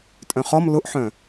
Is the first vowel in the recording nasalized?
yes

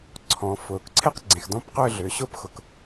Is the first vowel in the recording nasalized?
yes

